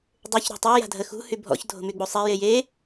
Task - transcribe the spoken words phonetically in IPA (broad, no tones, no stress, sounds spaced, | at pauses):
dˤ ø ç ɾ o̤ tˤ o j a̤ dʱ ə x ṳ h y bʱ ɔ̰ ç dʱ o̤ m y ɡ͡b u sˤ ɛ j e j e